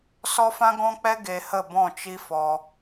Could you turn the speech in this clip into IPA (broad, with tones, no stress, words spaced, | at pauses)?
sɔ˦fã˦ɡɔ̃˦k͡pɛ˦ ɡe˧hə˦˨bɔ̃˦˨ t͡ʃi˦fɔ˧